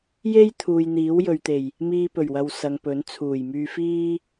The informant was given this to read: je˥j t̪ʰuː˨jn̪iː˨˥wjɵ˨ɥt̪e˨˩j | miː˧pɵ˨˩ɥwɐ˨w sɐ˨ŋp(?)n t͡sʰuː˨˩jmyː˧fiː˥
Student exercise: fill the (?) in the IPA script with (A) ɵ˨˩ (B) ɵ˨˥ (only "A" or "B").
B